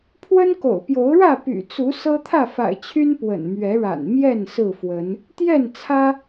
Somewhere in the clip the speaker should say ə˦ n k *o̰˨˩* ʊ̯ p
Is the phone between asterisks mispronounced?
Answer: no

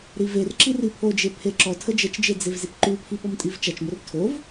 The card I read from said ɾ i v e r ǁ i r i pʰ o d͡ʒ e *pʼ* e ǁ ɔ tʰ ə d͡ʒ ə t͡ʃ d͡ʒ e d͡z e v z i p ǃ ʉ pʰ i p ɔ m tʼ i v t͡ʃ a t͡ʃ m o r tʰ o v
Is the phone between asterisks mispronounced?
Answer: yes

